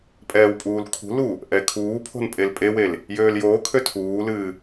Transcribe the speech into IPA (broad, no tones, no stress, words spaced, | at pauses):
pʼɛːwpʼuːlkʰṳlu | ʔɛkʰuːpʰo̤n pʼelpʼewel | jøːljoːkʰø tʰuːlɨː